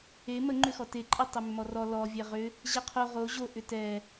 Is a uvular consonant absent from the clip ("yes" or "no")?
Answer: no